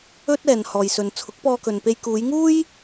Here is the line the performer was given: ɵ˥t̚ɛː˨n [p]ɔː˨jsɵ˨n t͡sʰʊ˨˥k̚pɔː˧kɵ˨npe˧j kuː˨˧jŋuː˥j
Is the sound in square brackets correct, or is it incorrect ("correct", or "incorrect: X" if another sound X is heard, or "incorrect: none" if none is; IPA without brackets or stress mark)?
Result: incorrect: h